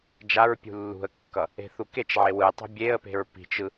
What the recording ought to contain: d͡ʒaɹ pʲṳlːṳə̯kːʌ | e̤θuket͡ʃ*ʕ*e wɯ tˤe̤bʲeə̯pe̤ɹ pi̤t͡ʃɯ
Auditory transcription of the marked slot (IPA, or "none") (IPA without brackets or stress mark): ʕ